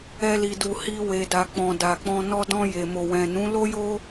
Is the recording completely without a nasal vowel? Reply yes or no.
no